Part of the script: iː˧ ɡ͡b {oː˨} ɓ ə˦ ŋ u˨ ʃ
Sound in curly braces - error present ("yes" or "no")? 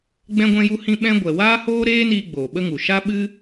no